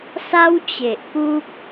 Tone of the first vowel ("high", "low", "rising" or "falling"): high